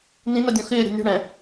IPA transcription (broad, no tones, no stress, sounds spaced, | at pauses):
n ĩ n a dʲ ɔ̃ x ɪː ɾʲ a̤ nʲ o̤ ɽ ɛ̃